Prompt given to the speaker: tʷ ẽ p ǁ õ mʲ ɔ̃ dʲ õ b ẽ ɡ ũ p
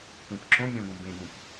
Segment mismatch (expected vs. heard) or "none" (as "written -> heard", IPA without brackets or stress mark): dʲ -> ɡ